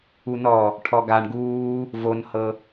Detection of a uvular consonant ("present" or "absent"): absent